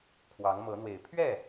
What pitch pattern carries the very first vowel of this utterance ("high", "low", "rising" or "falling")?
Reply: rising